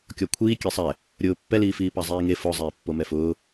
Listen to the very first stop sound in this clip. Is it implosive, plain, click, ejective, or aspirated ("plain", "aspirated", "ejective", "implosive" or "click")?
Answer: plain